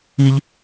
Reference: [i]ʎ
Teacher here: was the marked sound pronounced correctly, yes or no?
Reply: yes